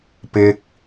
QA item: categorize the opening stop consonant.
plain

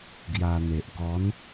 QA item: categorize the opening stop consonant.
plain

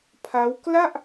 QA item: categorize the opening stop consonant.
aspirated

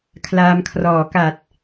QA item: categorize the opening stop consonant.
aspirated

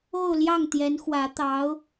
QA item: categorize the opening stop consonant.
plain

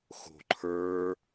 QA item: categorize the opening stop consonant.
click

